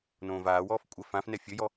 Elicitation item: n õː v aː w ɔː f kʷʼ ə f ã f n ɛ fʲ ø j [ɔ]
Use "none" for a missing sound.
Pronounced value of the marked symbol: ɔ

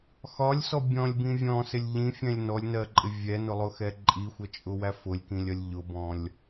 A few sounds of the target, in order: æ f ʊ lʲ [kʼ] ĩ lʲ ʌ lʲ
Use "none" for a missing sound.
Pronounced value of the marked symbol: k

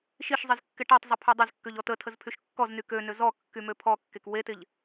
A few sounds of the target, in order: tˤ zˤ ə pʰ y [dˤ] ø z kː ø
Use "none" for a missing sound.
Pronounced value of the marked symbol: dˤ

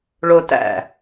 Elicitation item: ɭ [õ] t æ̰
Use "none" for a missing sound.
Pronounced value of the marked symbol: o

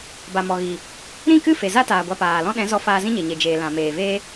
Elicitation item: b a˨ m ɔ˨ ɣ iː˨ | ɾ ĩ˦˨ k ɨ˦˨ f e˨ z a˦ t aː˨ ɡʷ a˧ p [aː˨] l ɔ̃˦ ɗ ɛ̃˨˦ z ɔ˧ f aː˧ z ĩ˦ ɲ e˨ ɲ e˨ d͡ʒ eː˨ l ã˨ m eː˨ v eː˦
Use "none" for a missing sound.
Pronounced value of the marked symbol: aː˨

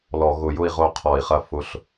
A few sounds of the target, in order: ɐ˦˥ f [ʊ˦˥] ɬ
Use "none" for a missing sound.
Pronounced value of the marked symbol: ʊ˦˥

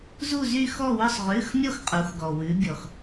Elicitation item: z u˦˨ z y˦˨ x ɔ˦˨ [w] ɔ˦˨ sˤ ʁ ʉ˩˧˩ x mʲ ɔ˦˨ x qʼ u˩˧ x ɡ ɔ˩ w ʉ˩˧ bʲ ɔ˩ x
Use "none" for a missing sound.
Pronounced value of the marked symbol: w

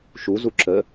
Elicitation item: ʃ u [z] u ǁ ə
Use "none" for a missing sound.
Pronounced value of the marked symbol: z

